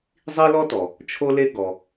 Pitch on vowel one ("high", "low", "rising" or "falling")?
high